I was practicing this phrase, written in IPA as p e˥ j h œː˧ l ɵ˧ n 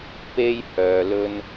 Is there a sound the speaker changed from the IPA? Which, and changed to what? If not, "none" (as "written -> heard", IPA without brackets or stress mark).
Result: none